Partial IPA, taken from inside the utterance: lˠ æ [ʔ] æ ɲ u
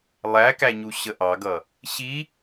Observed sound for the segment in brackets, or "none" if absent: k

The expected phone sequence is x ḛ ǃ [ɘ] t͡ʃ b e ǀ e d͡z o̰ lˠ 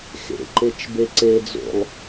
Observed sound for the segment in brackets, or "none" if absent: e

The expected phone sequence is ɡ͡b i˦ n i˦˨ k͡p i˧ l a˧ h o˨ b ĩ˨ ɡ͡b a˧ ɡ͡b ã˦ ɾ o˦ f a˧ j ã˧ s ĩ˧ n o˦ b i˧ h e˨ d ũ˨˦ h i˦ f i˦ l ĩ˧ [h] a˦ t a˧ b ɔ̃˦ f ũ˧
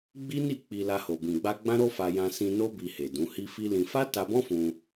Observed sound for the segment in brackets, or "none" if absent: f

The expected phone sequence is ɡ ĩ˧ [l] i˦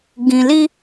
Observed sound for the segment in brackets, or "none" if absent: l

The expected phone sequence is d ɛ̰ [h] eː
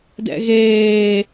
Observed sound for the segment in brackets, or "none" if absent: ɣ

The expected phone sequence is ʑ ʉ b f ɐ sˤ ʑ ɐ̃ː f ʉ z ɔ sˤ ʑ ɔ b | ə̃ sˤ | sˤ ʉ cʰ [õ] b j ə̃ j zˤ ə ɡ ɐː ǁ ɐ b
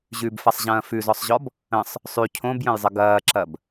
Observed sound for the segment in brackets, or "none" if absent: õ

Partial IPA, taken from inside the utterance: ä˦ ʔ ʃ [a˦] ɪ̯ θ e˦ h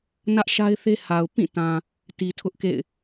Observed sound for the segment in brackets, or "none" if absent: a˦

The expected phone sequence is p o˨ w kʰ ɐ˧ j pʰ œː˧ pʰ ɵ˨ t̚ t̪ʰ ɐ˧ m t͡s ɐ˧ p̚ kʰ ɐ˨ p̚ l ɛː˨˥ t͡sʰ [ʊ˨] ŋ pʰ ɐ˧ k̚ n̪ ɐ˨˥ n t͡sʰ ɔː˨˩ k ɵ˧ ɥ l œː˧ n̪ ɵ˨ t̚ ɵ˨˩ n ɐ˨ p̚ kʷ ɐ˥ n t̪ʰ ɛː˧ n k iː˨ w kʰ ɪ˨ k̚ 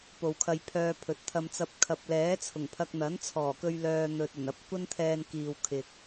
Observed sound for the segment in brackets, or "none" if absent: ʊ˨˩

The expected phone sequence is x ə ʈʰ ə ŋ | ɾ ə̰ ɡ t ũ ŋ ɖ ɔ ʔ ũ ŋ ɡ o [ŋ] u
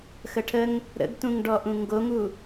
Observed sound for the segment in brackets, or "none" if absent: ŋ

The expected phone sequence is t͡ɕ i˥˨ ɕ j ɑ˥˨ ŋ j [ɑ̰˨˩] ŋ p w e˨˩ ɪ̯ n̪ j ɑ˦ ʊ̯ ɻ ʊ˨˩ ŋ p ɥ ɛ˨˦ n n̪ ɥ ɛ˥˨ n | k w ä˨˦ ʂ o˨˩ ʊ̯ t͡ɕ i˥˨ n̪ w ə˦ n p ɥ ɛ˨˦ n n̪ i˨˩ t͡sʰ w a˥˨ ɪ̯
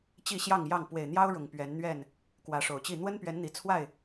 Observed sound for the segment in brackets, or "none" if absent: ɑ˥˨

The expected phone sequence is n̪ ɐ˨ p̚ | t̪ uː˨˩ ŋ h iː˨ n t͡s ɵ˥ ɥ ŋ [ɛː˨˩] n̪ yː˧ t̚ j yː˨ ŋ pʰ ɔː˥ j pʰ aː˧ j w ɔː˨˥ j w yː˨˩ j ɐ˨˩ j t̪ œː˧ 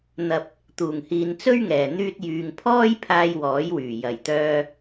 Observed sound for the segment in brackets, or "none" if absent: ɛː˨˩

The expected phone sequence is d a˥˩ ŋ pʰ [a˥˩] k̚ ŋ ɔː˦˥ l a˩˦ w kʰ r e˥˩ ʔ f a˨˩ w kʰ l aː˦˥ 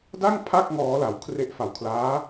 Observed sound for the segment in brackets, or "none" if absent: a˥˩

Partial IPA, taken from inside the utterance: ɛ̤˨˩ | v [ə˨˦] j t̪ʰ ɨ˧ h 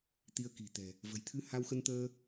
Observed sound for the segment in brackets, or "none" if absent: ə̤˨˩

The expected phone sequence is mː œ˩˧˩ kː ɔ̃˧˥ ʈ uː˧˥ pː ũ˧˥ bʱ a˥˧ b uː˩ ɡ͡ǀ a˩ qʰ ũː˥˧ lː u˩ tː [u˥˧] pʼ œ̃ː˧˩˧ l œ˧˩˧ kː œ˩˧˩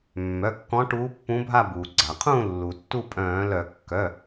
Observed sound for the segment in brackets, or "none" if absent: u˥˧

